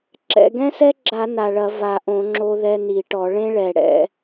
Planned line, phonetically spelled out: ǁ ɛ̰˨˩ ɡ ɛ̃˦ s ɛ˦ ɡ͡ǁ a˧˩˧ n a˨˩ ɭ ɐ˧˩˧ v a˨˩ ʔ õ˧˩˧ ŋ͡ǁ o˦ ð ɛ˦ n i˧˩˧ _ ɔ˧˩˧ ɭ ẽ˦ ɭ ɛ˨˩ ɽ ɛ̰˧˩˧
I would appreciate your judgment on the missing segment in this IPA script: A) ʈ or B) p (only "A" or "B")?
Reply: A